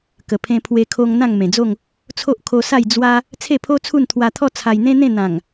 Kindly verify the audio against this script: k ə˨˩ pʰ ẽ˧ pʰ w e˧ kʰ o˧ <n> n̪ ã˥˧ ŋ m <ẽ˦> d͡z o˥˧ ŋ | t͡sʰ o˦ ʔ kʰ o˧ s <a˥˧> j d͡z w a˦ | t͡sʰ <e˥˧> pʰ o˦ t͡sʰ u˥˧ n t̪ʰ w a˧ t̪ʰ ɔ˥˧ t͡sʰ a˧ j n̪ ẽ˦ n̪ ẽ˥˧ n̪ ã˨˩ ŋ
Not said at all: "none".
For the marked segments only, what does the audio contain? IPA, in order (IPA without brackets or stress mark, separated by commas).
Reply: ŋ, ẽ˨˩, a˥˧, e˥˧